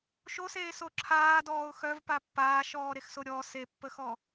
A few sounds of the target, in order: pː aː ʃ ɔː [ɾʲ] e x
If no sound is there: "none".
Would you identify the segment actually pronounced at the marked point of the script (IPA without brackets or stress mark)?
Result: ɾ